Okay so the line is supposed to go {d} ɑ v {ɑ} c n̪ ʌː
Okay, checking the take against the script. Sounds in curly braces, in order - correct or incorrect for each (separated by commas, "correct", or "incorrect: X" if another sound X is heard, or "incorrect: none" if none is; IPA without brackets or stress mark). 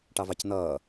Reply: incorrect: ʈ, correct